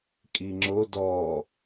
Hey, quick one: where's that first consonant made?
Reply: velum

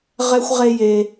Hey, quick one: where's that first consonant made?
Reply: uvula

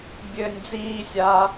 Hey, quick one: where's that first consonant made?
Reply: lips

